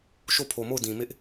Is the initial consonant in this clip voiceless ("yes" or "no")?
yes